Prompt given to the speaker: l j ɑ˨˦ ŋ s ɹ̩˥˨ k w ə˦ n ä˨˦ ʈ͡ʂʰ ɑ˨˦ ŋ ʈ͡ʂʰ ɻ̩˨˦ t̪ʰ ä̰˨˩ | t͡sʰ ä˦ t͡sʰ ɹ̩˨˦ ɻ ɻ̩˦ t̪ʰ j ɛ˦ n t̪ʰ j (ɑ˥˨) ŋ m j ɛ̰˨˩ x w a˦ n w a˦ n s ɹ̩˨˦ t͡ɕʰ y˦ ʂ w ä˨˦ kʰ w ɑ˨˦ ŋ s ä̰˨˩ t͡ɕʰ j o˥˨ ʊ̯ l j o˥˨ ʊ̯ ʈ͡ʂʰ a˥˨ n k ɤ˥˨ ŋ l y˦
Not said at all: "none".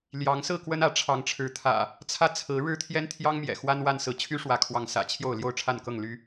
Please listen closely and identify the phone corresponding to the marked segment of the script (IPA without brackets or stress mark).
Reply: ɑ˦